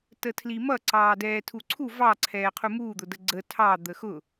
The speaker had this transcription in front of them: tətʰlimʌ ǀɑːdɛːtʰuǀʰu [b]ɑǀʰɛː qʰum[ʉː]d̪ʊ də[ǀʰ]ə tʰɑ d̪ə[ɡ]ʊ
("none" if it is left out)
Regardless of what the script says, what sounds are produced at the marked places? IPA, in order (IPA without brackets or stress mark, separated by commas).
v, uː, ɡ͡ǀ, x